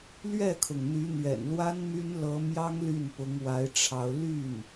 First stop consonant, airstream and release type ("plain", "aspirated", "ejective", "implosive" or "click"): aspirated